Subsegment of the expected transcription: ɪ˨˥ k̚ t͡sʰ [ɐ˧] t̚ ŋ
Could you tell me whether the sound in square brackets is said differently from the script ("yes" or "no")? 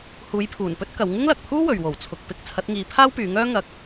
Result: yes